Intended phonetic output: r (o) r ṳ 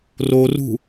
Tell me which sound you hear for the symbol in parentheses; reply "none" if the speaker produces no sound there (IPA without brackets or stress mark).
o